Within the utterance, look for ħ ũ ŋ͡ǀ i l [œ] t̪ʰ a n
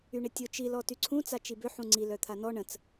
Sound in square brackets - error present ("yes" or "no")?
no